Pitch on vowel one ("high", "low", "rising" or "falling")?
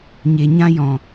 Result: low